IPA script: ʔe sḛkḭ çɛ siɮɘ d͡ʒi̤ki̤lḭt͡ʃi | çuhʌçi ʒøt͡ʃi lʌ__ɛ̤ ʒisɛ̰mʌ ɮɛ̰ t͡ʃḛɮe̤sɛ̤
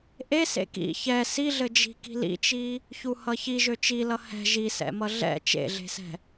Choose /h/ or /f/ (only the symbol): h